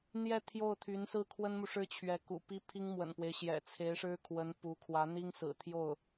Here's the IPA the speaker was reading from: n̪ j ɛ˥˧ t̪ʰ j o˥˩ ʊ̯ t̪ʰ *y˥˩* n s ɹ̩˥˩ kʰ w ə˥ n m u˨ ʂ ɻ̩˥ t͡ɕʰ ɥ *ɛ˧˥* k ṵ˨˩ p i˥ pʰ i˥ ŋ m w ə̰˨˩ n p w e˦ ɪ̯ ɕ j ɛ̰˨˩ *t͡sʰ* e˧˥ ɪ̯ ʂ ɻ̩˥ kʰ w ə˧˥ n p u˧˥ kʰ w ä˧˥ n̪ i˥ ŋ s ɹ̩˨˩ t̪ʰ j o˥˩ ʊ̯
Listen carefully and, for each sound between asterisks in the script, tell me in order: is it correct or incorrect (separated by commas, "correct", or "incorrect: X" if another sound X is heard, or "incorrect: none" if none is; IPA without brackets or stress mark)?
incorrect: y˧˥, correct, correct